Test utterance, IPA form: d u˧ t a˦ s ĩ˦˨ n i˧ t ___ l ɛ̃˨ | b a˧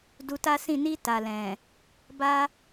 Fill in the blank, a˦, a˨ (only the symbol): a˨